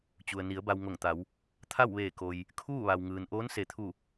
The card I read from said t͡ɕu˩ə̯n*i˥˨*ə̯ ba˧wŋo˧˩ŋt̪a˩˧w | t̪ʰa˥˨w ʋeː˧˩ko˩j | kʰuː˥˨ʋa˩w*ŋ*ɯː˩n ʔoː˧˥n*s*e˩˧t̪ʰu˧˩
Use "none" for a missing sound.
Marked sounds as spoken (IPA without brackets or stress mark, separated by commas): i˩˧, ŋ, s